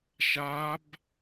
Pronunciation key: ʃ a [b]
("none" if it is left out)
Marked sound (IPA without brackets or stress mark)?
b